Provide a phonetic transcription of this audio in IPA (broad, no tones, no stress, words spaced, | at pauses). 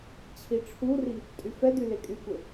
t͡ɕʰiʈ͡ʂʰuri | tʼyfɛdy lekʼykʷe